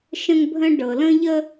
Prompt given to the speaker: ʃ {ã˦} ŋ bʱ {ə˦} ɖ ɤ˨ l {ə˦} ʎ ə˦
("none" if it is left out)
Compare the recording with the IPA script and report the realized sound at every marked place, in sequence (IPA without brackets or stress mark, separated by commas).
ə̃˦, ə̃˦, ə̃˦